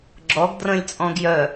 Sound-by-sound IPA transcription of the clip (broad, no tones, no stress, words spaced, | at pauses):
ɡ͡ǁɔɡ drə̃lʲ t͡sʼɔ̃ɡjœ